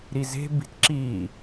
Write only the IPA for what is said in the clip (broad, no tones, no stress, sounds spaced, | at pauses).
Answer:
ɾ i z e̤ b i̤ t ǁ i